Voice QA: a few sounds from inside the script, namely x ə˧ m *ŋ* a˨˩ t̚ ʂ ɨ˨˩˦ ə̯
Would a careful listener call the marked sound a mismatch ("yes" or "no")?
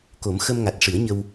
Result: no